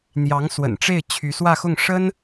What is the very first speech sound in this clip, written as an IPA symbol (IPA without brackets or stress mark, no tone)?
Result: n̪